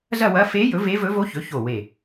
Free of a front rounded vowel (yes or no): yes